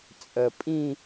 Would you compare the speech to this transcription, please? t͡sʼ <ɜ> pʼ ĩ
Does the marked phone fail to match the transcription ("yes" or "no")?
no